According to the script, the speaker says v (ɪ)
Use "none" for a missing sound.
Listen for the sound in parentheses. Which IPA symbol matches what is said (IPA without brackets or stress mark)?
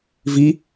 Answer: i